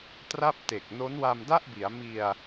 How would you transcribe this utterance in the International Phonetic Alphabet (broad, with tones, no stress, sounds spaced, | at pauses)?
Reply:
t r a˥˩ p̚ t e˨˩ k̚ n o˦˥ n w a˧ m d a˥˩ ʔ b i˩˦ a̯ m i˧ a̯